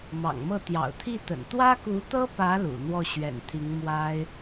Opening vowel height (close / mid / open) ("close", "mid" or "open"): open